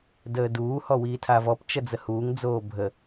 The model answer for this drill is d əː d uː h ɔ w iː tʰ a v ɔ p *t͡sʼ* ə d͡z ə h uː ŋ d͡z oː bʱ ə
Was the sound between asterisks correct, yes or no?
no